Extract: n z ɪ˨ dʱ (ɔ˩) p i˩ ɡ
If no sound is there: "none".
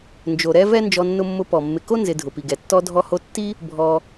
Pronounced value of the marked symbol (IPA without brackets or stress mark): ʊ˩